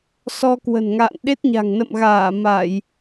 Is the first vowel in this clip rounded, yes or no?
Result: yes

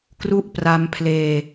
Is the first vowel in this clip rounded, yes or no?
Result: yes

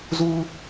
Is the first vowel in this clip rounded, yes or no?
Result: yes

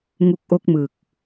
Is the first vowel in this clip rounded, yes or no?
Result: yes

